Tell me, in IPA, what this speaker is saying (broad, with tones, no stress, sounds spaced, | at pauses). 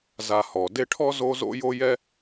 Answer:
z a˨ h ɔ˩ d e˦ ʈʰ ɔ˥ z o˦ z o̰˥ j o˥ j ɛ˦